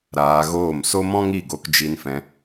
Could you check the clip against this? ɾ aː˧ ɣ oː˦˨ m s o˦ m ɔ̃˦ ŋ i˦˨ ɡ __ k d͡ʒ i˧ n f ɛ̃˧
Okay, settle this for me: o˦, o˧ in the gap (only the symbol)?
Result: o˧